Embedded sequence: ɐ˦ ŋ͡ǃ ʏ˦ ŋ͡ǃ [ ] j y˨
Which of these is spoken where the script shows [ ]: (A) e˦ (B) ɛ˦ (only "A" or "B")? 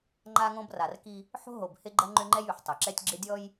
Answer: B